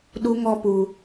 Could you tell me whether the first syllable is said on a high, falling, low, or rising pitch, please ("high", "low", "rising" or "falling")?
high